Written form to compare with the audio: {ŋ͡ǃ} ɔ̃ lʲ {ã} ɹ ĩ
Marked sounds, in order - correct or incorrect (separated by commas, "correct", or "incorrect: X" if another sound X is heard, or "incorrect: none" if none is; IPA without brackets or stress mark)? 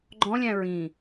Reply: incorrect: ɡ͡ǃ, incorrect: æ̃